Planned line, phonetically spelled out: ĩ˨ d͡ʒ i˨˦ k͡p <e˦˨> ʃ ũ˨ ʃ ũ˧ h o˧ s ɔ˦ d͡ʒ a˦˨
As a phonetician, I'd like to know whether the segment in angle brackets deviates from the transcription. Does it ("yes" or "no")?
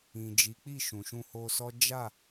yes